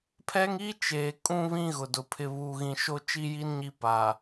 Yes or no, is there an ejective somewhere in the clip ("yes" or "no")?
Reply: yes